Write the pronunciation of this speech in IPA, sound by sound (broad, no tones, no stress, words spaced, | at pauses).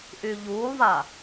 ʔyʎuːlˠva